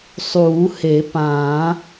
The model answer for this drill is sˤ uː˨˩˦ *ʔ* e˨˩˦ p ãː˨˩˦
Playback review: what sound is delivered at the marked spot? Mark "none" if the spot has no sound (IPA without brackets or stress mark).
h